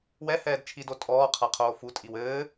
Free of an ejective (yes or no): no